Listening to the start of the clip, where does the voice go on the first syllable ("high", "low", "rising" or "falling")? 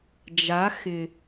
rising